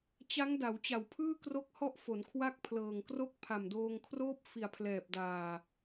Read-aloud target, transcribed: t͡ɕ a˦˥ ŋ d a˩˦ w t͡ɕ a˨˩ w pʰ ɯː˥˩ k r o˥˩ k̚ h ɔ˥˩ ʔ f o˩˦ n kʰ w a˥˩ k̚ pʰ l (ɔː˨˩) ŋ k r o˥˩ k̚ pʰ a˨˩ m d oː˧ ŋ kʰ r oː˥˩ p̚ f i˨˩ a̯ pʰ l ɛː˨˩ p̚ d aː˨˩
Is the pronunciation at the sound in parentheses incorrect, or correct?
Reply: incorrect